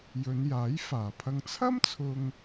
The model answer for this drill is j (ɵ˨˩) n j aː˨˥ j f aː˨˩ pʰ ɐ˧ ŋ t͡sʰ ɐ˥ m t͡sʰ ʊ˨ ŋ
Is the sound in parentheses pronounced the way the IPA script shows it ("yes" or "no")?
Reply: no